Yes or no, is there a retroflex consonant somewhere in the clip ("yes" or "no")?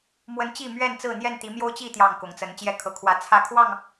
no